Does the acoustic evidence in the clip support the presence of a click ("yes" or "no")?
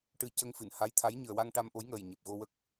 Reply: no